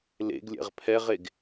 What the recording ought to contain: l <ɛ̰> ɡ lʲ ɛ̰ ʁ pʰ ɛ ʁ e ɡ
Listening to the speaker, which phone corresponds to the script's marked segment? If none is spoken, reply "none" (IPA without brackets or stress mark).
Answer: ḛ